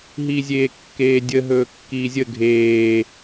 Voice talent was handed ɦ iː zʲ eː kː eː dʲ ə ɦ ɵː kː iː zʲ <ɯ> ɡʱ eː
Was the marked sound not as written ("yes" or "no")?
yes